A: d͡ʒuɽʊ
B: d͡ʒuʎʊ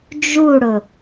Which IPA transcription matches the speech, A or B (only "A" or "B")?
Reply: A